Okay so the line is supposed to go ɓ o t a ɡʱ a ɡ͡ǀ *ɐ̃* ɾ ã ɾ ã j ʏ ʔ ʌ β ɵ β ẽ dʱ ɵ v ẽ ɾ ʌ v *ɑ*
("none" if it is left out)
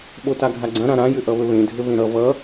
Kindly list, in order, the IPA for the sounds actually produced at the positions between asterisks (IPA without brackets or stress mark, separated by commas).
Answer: ɐ̃, ʌ